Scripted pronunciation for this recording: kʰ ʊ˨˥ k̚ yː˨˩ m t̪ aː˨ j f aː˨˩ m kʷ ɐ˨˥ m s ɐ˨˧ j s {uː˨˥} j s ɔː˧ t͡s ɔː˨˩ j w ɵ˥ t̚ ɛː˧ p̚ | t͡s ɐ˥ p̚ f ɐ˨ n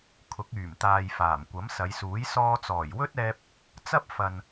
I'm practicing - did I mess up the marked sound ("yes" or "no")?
no